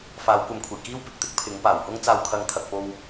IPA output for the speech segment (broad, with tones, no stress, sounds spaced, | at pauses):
f aː˨˥ w kʷ ɐ˨˧ m kʷʰ e˨˩ j k iː˥ w p ɪ˨ k̚ t̪ ɪ˥ k̚ pʰ ɪ˨˥ ŋ p aː˨˩ w h ʊ˥ ŋ t͡s aː˧ w kʰ ɐ˨˧ ŋ t̪ʰ ɐ˨ k̚ p o˧ w